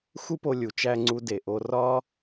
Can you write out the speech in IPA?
xu˥po˧lʲu˩ t͡ʃæ˧ ŋ͡ǀu˧de˩ ʔo˧ rɒ˥

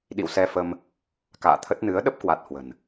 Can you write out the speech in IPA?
ɗḭ˧˨wsɛ˧fə˧m | ka̰ː˧˨t̪ʰə˦˥t̚ nɨ˨˦ə̯ ɗə˦˥p̚kwa˨˩t̚ hwə̤˨˩n

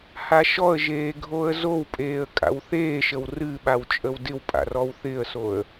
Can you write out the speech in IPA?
haʃɔə̯ʒeː ɡʱoə̯zowpʼeːə̯ kʼa̰wθeːʃəw rɨ ɓawt͡ʃʼəwdɪwpʼa̰ rɔwθɪə̯soə̯

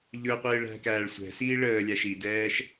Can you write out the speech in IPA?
ʎɵ qʷɨːɭæ̤kæːɭ sʷɛ̤siː ɭəːlʲæʃ idɛːʃ

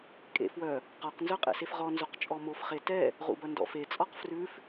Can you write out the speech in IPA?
kʼḛfwœ | qɔq nzœqʼɛ̰sefʁɔ nzoqt͡ʃʼɔmof χetɛ | ʁṵbɐndɔ̰fe t͡sʼɔqfrʉf

